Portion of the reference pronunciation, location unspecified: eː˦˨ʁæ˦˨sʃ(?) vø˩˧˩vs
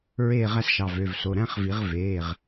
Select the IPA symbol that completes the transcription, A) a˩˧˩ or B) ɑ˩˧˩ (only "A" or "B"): B